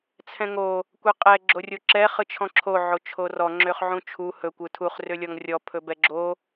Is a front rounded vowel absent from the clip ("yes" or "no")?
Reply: no